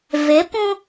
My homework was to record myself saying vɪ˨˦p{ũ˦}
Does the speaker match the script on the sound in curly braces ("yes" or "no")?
yes